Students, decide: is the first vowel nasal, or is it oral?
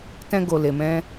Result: nasal